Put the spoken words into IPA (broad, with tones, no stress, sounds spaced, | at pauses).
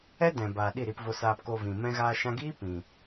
ɛ˦ d ɛ̃˨ b aː˨ ɗ i˦˨ ɾ i˧ p v o˧ s aː˧ p k o˧ v ĩ˨ m ɛ̃˦ ɣ aː˧ ʃ ã˧ ɡ iː˦ p ĩ˨